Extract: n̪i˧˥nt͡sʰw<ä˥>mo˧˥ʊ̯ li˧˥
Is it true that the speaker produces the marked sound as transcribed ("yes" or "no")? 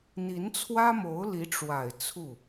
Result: yes